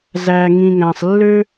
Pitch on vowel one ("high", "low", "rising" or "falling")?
low